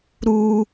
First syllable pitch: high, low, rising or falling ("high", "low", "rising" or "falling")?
high